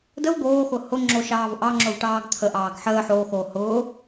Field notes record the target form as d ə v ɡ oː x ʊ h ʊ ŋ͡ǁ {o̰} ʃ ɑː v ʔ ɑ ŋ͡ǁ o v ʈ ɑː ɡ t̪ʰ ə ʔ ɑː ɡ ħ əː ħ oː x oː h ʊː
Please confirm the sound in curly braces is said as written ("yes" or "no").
no